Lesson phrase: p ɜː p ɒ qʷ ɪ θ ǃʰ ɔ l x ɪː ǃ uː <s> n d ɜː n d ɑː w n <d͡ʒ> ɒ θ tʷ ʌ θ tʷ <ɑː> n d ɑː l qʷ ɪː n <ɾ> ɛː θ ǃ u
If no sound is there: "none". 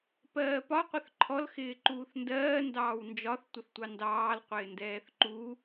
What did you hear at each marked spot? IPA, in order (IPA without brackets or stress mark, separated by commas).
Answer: θ, d͡ʒ, ɑ, d